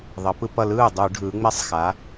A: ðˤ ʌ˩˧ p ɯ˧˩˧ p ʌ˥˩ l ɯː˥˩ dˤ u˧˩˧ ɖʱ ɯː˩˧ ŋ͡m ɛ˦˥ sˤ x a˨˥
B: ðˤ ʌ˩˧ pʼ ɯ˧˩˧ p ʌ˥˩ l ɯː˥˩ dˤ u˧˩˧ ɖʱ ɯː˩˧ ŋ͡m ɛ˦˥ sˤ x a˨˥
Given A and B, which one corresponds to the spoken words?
A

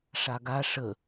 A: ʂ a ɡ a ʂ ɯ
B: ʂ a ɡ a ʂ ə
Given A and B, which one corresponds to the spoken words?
B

